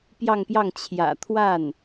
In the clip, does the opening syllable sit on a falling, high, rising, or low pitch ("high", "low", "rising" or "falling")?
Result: falling